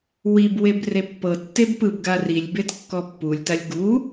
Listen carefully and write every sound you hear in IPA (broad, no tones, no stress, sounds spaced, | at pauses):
w i b w e b r e pː ɤ tː e b p ɯ b ɡ a r i lʲ b e t kː ɔ pː u lʲ t a lʲ ɡ u